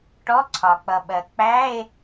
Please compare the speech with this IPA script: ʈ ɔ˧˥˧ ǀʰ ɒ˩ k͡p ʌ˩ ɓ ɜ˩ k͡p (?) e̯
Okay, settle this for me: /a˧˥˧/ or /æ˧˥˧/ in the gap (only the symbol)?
æ˧˥˧